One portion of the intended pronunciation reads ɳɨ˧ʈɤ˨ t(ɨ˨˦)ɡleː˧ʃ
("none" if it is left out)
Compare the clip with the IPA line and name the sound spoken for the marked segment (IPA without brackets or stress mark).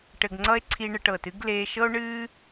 ɨ˨˦